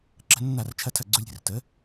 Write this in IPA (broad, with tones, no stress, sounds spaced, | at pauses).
ǁ ə̤˧ nː a˥˩ r t͡ʃʰ ɐ˥˩ tʰ ɐ˥˩ ɡ͡ǀ u˧ lʲ ɾʲ ə̤˥˩ r t ə˩˥